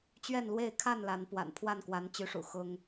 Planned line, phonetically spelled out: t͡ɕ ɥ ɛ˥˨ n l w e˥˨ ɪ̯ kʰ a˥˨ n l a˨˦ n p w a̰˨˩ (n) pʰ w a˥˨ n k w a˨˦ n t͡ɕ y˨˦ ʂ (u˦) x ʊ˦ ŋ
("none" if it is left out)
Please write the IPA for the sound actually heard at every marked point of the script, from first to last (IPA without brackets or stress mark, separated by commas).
n, ṵ˨˩